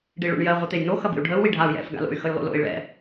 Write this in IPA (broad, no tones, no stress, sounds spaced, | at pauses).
ɖ i ɭ o̰ ɳ j ɜ ʁʷ i t̪ e j n o x ɐ b ḭ u̯ ɖʱ ə u̯ w i ɖʱ a u̯ j ɛ̰ f ɡ a̰ l o̰ y̯ x ə j lˠ o̰ l o̰ i̯ ɭ ɛ̰